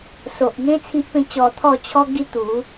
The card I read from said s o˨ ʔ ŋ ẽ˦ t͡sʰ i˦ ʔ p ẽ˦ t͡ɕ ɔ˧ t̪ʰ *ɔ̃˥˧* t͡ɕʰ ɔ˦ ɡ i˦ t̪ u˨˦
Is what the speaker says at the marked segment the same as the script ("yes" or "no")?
no